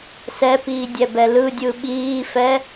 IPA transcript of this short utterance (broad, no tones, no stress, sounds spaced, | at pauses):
s ɛ p iː dʲ ɛ b ɛ l ɯ dʲ ɯ ɓ iː f ɛ